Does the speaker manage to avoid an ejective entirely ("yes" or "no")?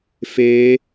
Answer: yes